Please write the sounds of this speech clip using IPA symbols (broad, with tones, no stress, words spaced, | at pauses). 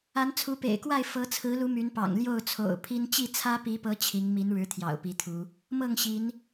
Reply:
a˨˦nt͡sʰu˨˦pḛ˨˩ɪ̯kwa˥˨ɪ̯ fɤ˨˦t͡sʰɹ̩˨˦lu˨˦ my˨˦npɑ̰˨˩ŋ ljo˥˨ʊ̯t͡sʰo̰˨˩ʊ̯pʰi˦n t͡ɕi˥˨t͡sʰä˦pi˨˦pɤ˨˦ t͡ɕʰi˨˦ŋmi˨˦nɻɻ̩˨˦ t̪ʰjɑ̰˨˩ʊ̯pi˨˦t̪ʰu˨˦ | mɤ˥˨ŋɕi˨˦n